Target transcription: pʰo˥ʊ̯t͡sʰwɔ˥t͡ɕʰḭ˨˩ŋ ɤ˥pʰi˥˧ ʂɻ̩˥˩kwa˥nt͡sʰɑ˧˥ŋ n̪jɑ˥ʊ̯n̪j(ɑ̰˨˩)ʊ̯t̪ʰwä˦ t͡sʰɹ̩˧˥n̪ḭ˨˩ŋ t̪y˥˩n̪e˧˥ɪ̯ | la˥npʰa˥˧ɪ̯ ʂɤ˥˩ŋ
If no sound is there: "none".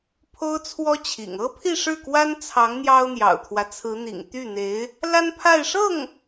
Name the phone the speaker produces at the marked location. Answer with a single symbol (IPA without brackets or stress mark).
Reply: ɑ̰˨˩